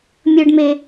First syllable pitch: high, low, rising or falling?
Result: low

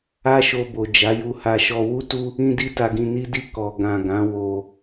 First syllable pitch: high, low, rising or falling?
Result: high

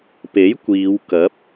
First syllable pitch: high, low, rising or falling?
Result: rising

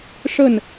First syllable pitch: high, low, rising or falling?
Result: falling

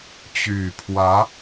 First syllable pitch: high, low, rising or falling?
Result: low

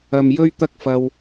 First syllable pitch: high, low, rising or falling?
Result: low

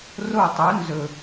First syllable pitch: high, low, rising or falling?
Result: falling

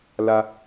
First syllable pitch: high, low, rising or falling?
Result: high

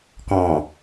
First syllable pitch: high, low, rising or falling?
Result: low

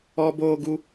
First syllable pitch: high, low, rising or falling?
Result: high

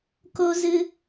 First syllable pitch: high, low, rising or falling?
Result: high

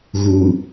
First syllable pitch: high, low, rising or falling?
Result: low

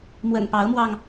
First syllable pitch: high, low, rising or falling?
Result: low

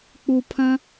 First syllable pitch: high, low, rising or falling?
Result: low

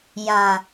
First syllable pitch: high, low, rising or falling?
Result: low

